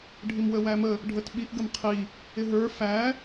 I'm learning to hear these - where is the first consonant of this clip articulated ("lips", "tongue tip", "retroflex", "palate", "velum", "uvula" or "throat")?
retroflex